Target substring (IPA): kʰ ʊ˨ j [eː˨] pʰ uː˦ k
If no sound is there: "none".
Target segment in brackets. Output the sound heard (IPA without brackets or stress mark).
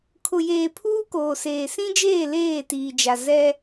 eː˨